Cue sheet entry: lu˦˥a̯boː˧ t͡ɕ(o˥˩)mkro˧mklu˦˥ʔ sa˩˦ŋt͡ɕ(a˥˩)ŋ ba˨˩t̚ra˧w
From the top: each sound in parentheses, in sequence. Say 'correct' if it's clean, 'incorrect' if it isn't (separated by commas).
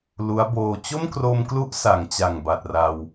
correct, incorrect